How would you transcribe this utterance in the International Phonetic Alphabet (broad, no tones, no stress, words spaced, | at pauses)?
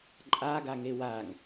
ǃʼaɡaŋe waŋ